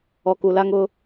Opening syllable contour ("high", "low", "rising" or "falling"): low